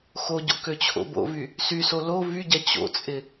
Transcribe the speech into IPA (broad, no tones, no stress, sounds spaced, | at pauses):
x o ɟ o̰ k ø t͡ɕʰ o̰ b o̰ v y | s y s o l o v y ɟ ɛ t͡ɕ o̰ t͡sʼ ɪ